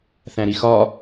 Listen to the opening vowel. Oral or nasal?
nasal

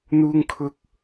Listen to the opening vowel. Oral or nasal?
oral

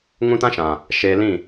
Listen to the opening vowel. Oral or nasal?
nasal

